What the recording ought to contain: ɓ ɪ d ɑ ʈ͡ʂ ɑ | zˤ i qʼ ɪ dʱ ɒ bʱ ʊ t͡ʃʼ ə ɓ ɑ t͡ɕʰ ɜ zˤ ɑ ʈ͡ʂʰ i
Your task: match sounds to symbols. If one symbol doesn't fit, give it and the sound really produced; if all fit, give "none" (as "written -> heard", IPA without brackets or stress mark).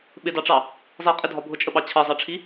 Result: none